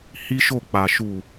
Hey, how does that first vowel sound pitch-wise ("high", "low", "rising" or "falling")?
high